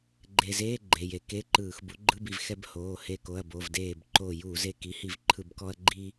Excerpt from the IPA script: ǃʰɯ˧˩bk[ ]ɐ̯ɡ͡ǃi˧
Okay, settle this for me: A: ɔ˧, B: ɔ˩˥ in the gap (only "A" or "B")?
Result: A